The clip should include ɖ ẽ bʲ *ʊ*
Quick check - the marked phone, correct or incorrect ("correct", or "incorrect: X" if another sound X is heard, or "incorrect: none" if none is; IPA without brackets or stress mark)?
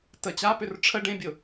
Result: correct